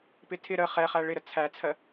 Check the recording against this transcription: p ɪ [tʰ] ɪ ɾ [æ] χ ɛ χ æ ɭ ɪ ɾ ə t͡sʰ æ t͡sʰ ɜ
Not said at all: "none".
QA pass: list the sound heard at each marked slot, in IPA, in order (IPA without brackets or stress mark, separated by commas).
tʰ, ə